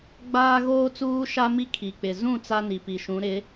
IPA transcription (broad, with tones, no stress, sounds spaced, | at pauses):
ɡ͡b aː˦ ɣ oː˦ t͡s uː˦ ʃ a˦ m i˦ kʰ i˨ k͡p ɪ˨ z ũ˦˨ t͡s a˦ n i˨ p i˨ ʃ ũ˨˦ ɾ ɪ˨˦